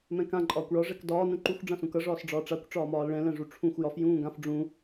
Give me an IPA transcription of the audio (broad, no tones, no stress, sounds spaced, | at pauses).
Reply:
m ɛ̃ k ã ǃʼ ɒː kʷ ɭ ɒ ʐ ɛ k d ɒː n ũ ǃ u xʷ ɖ͡ʐ ã s ũ k ʌ ʐ ɒː s ɖ͡ʐ ɒː ʈ͡ʂ a kʷ ʈ͡ʂ ɒː m ɒː l ɭ ɛ̃ l ɛ̃ ʐ u ʈ͡ʂʰ ũ xʷ j ɒ f j ũː ɡ ã f ɖ͡ʐ ũ